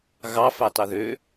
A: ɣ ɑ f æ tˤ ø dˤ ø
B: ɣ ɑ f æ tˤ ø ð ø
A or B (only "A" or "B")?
B